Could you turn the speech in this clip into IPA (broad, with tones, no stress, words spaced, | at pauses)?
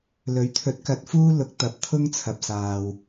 lɵ˨˥ɥt̪ʰɵ˨˥t̚kɐ˨˥t̚fuː˥ lʊ˨˥k̚ t̪ɐ˨˥p̚t̪ʰʊ˥ŋt͡sʰɐ˨p̚ saː˨w